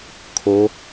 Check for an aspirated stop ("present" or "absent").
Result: present